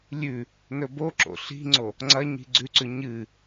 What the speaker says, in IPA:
lʲ ʉ | n ɵ b o ǁ o̰ ɬ i̤ ŋ͡ǀ o | ŋ͡ǀ ɐ ɲ i̤ ɡ͡ǀ ʉ ǀ ʉ ɲ ɨ

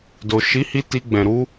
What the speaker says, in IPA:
d o˨ ʃ i˨˦ h i˧ t i˧ ɡ͡b ɛ̃˨ ɾ u˧

